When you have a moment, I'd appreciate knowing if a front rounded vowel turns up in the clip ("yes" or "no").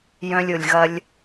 yes